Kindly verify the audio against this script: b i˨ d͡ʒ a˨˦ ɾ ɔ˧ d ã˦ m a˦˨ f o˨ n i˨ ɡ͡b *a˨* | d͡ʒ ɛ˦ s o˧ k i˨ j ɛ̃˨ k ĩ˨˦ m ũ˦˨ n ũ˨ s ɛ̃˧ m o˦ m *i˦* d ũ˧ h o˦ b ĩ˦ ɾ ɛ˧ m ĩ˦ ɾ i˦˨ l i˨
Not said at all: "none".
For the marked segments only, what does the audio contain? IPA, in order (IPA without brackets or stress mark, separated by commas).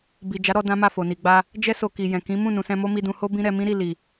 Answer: a˧, i˧